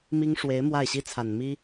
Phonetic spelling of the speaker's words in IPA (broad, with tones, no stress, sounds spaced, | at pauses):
m i˥ ŋ ʂ w e˧˥ ɪ̯ m w a˥˩ ɪ̯ ɕ i˥ t͡sʰ a˨˩ n m i˥